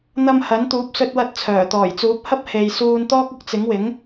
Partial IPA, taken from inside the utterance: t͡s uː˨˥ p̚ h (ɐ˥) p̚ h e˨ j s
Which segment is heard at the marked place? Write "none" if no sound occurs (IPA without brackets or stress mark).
ɐ˥